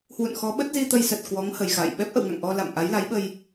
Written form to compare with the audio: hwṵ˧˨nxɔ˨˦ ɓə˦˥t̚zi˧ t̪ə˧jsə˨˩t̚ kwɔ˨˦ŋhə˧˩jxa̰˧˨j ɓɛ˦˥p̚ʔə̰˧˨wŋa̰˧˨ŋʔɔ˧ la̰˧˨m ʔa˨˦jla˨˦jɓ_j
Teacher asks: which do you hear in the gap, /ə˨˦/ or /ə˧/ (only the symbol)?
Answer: ə˧